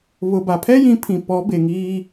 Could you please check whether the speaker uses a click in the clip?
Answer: no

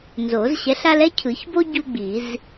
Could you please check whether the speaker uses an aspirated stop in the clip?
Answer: yes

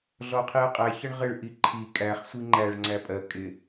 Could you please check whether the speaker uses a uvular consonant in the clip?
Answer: yes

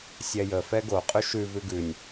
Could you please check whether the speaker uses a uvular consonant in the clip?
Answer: yes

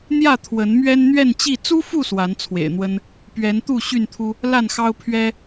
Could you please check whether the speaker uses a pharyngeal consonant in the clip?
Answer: no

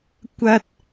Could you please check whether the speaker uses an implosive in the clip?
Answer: no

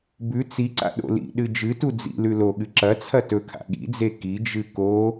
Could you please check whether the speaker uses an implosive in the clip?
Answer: yes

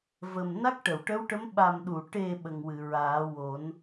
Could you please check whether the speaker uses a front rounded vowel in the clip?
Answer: no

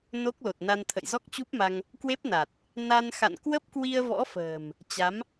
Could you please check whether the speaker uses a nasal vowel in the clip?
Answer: no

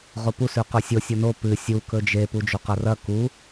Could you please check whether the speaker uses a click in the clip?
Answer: no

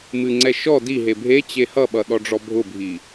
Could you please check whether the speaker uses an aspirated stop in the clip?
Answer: no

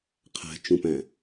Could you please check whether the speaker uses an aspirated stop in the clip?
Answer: yes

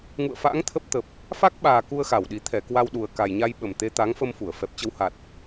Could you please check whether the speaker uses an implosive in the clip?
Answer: yes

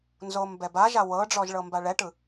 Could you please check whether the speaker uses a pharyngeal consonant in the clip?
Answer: no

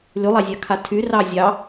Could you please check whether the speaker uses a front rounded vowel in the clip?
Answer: yes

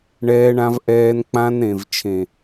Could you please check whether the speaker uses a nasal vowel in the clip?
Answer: yes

